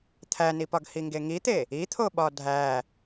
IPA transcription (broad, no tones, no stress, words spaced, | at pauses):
t̪ʰænipɒɡ hiŋɡeŋit̪e | it̪ʰoɓɒ dʱæ